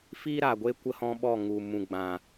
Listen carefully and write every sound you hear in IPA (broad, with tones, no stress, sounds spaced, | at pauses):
f iː˦ ɾ a˨ ɡʷ e˦ kʷ ə˦ h ɔ̃˦ ɓ ɔ˦˨ ŋ u˨ m ũ˨ ɡ͡b ã˨